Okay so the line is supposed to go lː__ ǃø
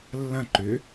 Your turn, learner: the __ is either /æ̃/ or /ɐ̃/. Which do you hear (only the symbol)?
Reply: ɐ̃